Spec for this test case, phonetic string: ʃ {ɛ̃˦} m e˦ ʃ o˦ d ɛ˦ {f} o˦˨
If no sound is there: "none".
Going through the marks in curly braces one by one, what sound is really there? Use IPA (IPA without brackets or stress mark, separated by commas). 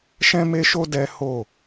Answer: ɛ̃˦, h